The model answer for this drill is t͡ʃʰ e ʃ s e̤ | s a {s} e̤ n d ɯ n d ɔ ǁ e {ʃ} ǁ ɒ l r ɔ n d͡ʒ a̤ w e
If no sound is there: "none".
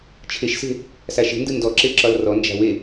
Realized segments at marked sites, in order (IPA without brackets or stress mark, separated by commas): ʃ, none